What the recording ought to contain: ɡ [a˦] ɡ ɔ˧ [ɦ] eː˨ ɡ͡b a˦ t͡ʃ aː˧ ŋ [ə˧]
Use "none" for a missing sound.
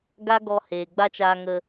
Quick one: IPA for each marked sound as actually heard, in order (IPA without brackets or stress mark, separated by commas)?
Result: a˦, h, ə˧